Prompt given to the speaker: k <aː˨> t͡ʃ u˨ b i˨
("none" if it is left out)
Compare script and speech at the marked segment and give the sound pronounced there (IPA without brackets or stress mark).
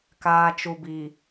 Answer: aː˨